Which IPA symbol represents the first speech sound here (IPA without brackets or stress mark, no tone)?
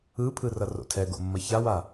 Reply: ɯ